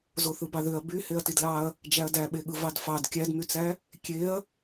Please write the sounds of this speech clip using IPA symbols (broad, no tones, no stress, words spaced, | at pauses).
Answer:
zoθɯbɑðøɐ̯ by heɐ̯tidlɑɐ̯ | d͡ʒæɐ̯dæɓeɠɯ vɑdfɑd kʲædmyt͡sæ | kʲeɐ̯